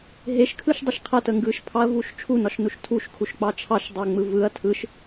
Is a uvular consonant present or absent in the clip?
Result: present